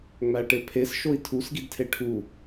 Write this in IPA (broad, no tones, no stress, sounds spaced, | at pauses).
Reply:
ŋ͡m æ ʈ e pʰ e s ʃ o i̯ tʰ u s ɡ i d tʰ e ʈʰ u